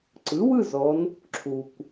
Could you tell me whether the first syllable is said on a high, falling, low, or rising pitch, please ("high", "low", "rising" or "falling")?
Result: rising